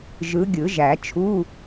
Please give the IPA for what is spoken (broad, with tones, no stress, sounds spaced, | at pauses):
ʒ ɯ˨˦ ɡʲ ɯ˨˩˦ ʒ æ˨˩˦ t͡ʃʰ u˧˥˧